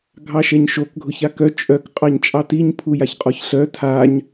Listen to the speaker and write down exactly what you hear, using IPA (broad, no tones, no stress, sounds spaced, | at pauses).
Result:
ɡʱ ɑ ʃ ɛ ɲ ʃ o k ɡʱ ʊ ç a k œ t͡ʃʼ œ k qʼ ɑ ɲ t͡ʃʼ ɑ t i ɲ pʰ u j a ç qʼ ɔ ç ɬ œ tʰ a ɲ